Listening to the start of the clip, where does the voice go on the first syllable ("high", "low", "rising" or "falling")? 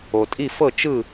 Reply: low